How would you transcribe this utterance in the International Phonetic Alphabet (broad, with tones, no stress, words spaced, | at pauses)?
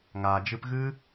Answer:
ŋaː˨ d͡ʒɨ˧pɣɨ˦